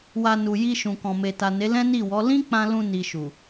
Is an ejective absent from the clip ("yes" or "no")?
yes